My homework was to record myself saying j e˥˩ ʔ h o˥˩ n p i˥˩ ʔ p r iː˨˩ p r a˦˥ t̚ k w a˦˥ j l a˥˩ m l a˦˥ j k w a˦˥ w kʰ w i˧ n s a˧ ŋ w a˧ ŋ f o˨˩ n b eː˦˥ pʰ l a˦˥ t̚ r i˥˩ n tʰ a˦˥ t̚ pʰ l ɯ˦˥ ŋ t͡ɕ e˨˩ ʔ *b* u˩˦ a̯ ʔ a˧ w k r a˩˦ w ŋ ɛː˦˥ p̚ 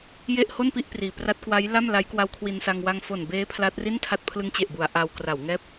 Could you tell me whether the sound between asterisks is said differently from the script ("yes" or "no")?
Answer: no